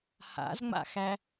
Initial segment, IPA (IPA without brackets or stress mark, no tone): h